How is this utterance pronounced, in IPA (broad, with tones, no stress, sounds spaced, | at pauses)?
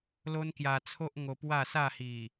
l o˦ n k j a˧ t͡sʰ o˦ ʔ ŋ o˧ p w a˥˧ s a˥˧ h i˨˩